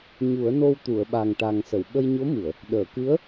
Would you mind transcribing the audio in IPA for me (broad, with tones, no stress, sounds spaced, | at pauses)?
ɲ u˨˩˦ ə̯ n o˧ w t̪ u˨˩˨ ə̯ ɓ a˨˩ ŋ ʈ a˨˩ ŋ s ə˨˩˨ w ɓ ə˧ j ɲ o˧˥ m ɨ˨˩˨ ə̯ | ɗ əː˨˩˨ k ɨ˧˥ ə̯